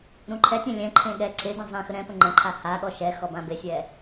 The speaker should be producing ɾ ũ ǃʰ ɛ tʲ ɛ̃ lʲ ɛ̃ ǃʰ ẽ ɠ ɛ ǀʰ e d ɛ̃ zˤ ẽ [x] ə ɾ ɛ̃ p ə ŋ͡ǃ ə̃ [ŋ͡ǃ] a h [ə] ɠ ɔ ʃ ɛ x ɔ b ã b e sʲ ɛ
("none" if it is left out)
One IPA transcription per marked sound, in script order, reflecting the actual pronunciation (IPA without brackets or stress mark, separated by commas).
x, ǃʰ, a